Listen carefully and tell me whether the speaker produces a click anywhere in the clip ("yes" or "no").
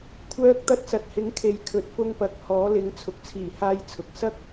no